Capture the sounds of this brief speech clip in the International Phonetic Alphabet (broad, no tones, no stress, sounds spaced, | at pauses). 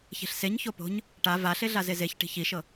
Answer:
ç e̤ ɬ s e ɲ ç o p o̤ ɲ | ʈ a v a ɬ e ɮ a z e z e ç ʈ i̤ ç i ʃ ɤ